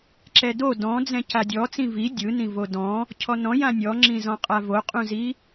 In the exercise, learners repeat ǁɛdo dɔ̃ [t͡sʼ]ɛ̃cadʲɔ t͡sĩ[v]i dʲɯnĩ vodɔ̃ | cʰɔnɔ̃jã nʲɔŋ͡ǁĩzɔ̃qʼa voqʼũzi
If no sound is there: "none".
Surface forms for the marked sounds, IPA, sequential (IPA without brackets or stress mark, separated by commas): d͡z, v